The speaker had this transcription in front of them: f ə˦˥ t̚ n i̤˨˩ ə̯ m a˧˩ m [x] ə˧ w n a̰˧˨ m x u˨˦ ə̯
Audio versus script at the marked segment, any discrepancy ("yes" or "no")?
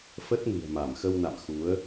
no